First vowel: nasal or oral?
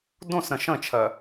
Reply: nasal